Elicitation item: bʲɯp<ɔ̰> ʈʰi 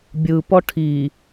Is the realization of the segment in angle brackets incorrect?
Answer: yes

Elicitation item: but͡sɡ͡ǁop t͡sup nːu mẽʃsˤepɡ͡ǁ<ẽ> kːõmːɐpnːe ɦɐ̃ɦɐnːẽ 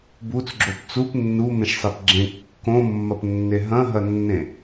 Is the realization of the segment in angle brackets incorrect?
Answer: no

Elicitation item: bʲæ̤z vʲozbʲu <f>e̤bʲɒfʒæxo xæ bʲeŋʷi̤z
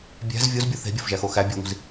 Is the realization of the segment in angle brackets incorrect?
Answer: yes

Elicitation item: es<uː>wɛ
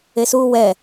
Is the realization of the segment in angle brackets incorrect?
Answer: no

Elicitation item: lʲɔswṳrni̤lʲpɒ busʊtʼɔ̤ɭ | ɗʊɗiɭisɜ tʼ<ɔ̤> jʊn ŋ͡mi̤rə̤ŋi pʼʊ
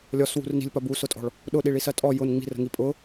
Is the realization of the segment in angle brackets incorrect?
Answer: yes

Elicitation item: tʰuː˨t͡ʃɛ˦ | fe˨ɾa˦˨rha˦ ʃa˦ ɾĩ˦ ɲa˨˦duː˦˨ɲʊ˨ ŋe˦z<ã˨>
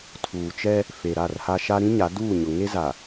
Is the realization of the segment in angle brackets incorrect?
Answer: yes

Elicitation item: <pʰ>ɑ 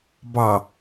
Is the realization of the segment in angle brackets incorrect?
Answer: yes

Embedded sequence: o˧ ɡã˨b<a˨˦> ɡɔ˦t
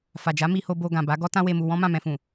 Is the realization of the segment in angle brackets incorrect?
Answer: no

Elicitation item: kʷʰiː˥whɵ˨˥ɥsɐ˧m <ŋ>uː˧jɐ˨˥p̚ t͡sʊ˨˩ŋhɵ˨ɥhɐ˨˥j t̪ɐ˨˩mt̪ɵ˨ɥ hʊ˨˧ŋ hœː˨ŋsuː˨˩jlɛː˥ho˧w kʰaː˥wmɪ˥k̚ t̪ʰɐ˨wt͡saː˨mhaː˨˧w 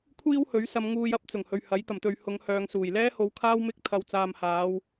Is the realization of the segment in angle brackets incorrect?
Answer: no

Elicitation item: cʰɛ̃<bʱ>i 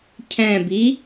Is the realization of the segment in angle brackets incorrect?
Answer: yes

